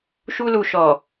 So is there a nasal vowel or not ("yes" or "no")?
no